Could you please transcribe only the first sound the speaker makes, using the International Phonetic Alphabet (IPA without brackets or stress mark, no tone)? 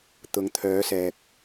t̪